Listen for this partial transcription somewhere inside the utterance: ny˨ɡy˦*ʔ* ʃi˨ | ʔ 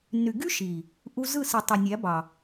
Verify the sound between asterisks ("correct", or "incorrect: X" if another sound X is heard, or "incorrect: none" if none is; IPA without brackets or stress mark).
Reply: incorrect: none